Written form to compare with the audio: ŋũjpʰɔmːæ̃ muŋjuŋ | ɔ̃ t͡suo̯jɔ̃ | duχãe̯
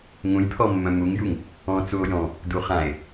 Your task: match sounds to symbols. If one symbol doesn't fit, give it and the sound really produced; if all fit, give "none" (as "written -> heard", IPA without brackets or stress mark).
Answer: æ̃ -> œ̃